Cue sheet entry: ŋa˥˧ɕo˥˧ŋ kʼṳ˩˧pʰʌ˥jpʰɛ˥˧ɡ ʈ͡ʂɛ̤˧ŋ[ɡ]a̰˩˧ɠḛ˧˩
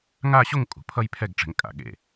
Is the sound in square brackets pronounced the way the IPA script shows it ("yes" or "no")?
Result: no